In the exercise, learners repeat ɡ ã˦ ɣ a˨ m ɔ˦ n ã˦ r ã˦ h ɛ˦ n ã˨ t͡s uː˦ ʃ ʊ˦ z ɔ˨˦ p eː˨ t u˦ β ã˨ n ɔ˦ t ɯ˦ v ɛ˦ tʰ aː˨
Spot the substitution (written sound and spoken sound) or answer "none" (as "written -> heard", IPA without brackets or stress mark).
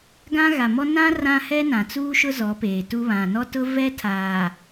ɯ˦ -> ʊ˦